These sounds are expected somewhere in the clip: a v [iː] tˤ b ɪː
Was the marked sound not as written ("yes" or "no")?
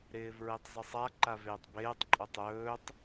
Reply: yes